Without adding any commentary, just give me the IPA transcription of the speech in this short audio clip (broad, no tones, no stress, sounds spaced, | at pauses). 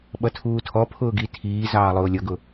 ɓ ʌ tʰ uː tʰ ɔ pʰ ʊː ɡ i tʰ iː z ɑː lˠ ʊː lʲ ʌ ɡ ʊ